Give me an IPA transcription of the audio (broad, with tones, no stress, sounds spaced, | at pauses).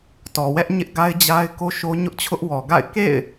t ɔ˨ w ɛ˦ ʔ ɲ ɪ˦ ʔ ɡ a˦ ɪ̯ d͡ʑ a˦ ɪ̯ k o˦ ʃ o˦ ɲ ʊ˦ ʔ t͡ɕʰ ʊ˦ ʔ w ɔ˨ ɡ a̰˦˨ ɪ̯ k ḛ˦˨ ɪ̯